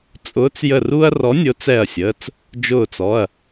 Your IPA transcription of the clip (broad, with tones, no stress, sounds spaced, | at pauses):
t͡sʼ ʊː˨˥ t͡s j ə˧˩ r u˦ ɐ̯ r ɔ˨˥ nʲ ʊː˨˥ t͡s ɛ˧˩ ɐ̯ sʲ əː˩˧˩ t͡s | d͡ʒ ʊː˧˩ t͡s ɔ˩˧˩ ɐ̯